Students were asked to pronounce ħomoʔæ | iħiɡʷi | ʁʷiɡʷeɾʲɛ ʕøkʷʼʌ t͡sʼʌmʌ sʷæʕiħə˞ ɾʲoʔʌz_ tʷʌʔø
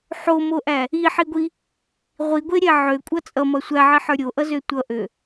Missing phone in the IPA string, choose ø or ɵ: ø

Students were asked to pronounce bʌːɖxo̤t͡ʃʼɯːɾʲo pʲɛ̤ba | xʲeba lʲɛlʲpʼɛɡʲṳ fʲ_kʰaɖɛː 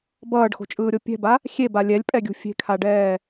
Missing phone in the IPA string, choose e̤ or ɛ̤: e̤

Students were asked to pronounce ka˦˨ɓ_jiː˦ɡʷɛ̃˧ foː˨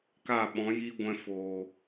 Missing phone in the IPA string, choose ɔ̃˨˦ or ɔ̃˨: ɔ̃˨˦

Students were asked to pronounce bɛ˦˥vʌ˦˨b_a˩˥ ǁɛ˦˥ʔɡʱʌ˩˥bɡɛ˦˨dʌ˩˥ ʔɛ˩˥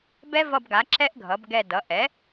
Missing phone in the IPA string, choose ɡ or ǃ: ɡ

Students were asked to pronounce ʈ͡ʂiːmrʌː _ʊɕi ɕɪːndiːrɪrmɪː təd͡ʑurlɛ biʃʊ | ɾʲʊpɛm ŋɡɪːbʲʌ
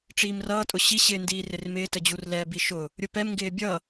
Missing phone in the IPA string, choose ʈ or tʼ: tʼ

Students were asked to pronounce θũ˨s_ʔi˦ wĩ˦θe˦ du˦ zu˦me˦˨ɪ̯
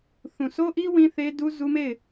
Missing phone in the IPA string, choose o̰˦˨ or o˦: o˦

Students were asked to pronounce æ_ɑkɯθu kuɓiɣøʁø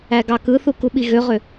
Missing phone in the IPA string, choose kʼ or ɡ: ɡ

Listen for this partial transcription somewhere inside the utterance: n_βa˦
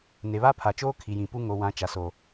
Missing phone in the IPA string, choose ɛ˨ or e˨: e˨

